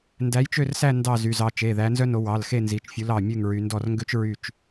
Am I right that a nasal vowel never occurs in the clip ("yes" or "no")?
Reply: yes